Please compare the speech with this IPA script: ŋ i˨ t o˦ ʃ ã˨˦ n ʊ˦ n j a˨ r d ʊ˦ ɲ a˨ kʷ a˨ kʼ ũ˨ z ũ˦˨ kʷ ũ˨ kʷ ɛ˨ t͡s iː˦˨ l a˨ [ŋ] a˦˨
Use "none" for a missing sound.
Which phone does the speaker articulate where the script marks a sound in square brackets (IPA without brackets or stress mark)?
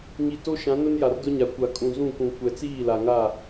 ŋ